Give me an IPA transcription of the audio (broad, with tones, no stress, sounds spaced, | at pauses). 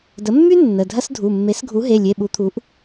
d ə˩˥ mː y˥ nː ə˩˧˩ dʱ ɐ˥ s dʱ u˩˧˩ mː e˩˥ s ɡʱ u˩˥ ɦ e˩˧˩ lʲ e˩˧˩ ɓ u˩˥ t̪ʰ u˩˥ ʔ